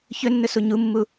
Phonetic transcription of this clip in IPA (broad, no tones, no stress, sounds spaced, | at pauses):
ç ɵ nː ɵ s u ɲ u mː u